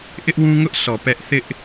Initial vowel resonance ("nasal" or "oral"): oral